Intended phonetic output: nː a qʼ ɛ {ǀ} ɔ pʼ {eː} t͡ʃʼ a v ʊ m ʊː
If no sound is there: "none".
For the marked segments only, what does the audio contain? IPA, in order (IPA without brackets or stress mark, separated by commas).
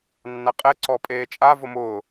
ǀ, eː